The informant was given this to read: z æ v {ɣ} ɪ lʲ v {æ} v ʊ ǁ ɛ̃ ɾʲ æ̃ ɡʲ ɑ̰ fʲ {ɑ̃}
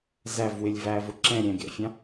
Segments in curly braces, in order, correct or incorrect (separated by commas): incorrect, correct, correct